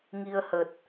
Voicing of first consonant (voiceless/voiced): voiced